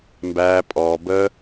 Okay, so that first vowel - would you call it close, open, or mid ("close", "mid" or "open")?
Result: open